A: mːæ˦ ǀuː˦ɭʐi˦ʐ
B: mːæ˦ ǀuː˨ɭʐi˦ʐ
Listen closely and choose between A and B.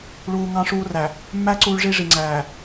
A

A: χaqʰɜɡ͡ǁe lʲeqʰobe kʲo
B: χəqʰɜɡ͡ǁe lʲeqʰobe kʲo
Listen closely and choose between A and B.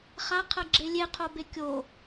A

